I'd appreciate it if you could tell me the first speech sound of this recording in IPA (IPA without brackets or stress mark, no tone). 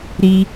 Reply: ɾ